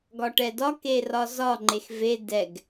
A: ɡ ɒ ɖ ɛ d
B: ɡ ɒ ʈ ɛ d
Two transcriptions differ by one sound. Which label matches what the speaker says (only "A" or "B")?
B